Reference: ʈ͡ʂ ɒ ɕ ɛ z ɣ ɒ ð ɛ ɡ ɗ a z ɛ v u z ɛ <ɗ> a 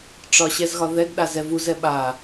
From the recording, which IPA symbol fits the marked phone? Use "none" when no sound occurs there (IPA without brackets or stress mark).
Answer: ɓ